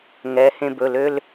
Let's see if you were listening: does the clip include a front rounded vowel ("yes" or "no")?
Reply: yes